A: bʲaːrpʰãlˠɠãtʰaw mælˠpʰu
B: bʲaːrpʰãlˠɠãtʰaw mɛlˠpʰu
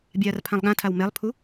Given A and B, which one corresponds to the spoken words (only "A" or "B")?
B